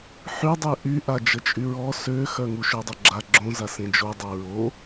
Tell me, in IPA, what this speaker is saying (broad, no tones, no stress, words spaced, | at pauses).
ħydˤy ʔyʔad͡ʒət͡ʃʼy ɹɔ søxœ ŋuʃødˤøɡ͡ǁa ɡ͡ǁõza sẽd͡ʒo dˤaɹo